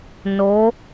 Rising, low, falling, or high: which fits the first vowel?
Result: rising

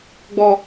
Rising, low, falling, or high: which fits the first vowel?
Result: high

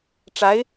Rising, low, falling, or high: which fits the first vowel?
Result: rising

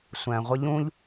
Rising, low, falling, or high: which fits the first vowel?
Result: low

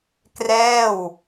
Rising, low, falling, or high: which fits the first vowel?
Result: falling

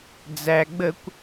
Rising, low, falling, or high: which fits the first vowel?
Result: low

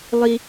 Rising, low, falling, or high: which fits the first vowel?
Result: high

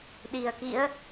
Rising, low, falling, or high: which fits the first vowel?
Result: low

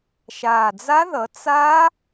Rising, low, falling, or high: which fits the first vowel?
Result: low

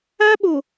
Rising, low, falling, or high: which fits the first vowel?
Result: high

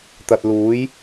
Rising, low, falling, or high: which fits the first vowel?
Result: low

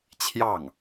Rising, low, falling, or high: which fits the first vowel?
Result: falling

